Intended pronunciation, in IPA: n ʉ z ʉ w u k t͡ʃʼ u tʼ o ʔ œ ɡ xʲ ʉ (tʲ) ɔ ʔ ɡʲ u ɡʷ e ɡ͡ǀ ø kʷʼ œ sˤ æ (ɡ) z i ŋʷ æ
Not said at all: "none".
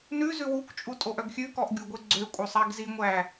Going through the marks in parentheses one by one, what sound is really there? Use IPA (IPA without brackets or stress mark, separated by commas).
k, ɡ